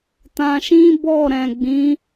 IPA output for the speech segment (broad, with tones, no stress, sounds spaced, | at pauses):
t ã˧ ʃ ĩ˦ b ɔ˦˨ ɾ ɛ̃˨ ɡ͡b ĩ˨˦